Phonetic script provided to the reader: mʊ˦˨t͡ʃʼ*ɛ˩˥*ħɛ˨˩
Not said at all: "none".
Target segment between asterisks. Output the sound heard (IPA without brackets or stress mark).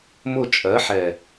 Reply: ɜ˩˥